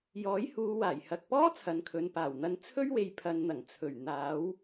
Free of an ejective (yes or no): yes